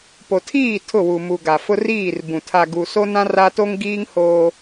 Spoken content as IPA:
p o˨ tʰ iː˦˨ tʰ ʊ˦˨ w u˨ m u˨ ɡ a˨ f ʊ˦ r iː˦˨ r b ũ˨ tʰ a˨ ɡ u˨ s o˦ n ã˦ r a˦ t o˦ ŋ ɡ iː˦ ŋ h oː˦

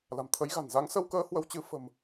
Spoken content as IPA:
l a̤˨˩ m t̪ʰ ə˨˦ j ɣ a̤˨˩ n z a˨˦ ŋ s ə˧ w k əː˧ h w ə˧ w t͡ɕ ɨ˧ f ə̤˨˩ m

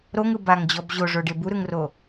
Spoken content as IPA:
ɾ o ŋ ɯ b a ŋ d͡ʑ ɔ b ʑ o ʐ o ɖ e b u ɾ ɯ ŋ r o

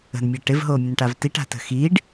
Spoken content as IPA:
ə̤ n mʲ ɤ ʈ ɪ v ɦ oː mʲ ə̃ n ʈ a v t i ʈ a̤ t ə̤ x iː ɖ

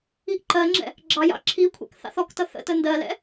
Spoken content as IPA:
i ʔ ǃ ɜ ŋ͡ǁ ɛ̰ | ɡ͡ǁ ɑ j ɑ̰ ǁʰ i kʷʰ ɛ̰ k θ ɑ̰ θ ɔ k t ʌ θ ə̰ t ə n d ɜ l ɛ̰

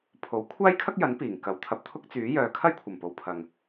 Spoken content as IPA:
pʰ o˨˥ w kʷʰ aː˥ j kʰ ɐ˥ k̚ j ɐ˨˥ n p iː˨˩ ŋ k ɐ˨˥ w t̪ʰ ɐ˨ p̚ t̪ʰ ʊ˥ k̚ t͡s yː˨˥ j œː˨ kʰ ɐ˥ j kʷʰ ɐ˨˩ m p o˨ w pʰ ɐ˨ ŋ

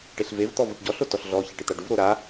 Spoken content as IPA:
ʈ e ɬ v e v t̪ ɔ v ʊ ʈ ɟ ɔ ɬ o t ɔ ɬ ɮ ɔ ç a ʈ ɪ t̪ a ɖ u v ɾ o ɾ a

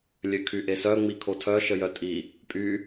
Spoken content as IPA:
lʲ ø kʰ y ʔ e s œ ŋ͡m i kʰ o tʰ œ ʃ ə j œ tʼ i | pʼ y

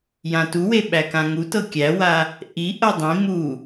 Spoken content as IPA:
j ã t u w e ɓ æ k ã ŋ u t ɤ kʲ æ w a | ʔ i ʔ ɤ dˤ ĩ m u

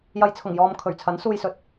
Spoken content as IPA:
j ɐ˨ j t͡sʰ ʊ˨˩ ŋ j ɔː˨ m kʰ ɵ˨˩ ɥ t͡sʰ ɐ˨˥ n s uː˧ j s ɵ˨˥ t̚

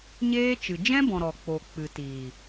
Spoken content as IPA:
ɲ eː˦ t͡ʃ ɨ˨ d͡ʒ ɛ̃˦ b ɔ̃˨ ɾ ɔ˨ k͡p o˨ k͡p ɨ˨ t iː˨

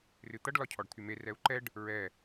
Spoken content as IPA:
r ɨ t̪ ʌ ɖ l ɒ cʰ ɔ ɖ t̪ʰ y m e r ɛ u̯ ǃ ɛ ɖ | ɹ ɛ

